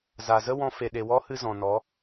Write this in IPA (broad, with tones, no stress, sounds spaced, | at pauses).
z a˨ z ə˦ w ɔ̃˧ f e˨ ɗ e˨ w ɔ˦ h ɨ˧ z ɔ̃˨ n ɔ˨˦